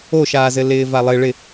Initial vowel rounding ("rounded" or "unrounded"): rounded